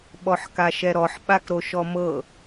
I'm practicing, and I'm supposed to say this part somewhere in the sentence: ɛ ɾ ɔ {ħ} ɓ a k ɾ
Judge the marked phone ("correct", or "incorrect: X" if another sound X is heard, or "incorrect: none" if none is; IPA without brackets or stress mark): correct